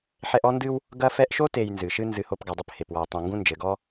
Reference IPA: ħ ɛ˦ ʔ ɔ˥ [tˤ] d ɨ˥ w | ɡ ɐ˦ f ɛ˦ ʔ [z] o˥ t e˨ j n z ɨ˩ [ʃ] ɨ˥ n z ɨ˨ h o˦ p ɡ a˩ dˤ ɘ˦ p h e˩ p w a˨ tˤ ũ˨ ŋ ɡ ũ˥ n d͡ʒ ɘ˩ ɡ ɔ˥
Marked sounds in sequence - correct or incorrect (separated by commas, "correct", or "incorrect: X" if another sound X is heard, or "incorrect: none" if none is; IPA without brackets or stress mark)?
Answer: incorrect: n, incorrect: ʃ, correct